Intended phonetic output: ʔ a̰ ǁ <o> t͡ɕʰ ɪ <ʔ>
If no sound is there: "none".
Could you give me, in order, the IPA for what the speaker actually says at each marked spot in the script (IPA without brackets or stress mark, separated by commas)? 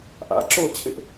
o, ʔ